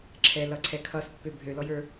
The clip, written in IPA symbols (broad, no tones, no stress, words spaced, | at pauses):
ǁʰɛlʌǀʰɛ kʰʌspːø bʱølɔjə˞